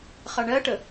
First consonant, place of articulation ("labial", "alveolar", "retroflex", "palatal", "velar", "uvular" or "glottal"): uvular